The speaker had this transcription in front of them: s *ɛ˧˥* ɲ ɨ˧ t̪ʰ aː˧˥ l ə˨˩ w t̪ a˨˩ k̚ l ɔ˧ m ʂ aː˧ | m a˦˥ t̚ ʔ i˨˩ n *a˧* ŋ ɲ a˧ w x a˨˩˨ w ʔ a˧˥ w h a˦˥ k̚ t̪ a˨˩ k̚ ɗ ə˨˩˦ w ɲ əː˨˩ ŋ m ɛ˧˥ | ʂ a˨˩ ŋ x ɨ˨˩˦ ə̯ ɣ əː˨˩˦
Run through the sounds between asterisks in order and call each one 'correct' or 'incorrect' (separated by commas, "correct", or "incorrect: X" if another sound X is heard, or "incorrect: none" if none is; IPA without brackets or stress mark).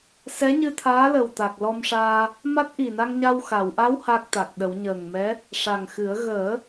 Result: correct, correct